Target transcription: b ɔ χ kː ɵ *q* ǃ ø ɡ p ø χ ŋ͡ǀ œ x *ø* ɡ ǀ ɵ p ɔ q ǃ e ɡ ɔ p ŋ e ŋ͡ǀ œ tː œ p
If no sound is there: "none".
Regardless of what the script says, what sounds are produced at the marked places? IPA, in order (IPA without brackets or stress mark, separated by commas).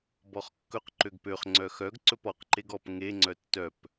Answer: q, œ